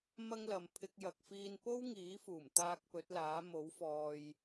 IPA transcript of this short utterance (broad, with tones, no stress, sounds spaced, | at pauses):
m ɐ˧ ŋ l ɐ˨ m pʰ ɪ˧ k̚ j ɐ˨ k̚ f iː˧ n p o˥ w ŋ iː˨˥ f uː˨˩ m t̪ aː˧ k̚ p ɵ˨˥ t̚ l aː˨˥ m o˨˥ w f ɔː˨ j